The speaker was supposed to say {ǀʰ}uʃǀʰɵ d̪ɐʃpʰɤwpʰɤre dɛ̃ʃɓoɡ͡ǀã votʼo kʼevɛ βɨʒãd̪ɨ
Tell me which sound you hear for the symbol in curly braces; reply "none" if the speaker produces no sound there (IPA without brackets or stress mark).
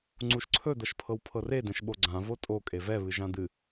ŋ͡ǀ